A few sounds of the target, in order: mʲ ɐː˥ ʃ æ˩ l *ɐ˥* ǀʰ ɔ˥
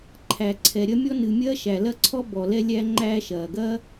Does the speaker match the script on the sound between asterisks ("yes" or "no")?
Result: yes